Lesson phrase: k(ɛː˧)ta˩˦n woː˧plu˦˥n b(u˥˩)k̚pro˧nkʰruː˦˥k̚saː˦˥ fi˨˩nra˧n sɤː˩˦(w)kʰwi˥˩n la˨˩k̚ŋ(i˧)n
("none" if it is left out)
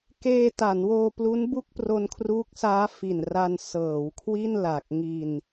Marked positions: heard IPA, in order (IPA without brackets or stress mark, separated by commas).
eː˧, u˥˩, w, i˧